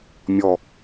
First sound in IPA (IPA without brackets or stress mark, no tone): mʲ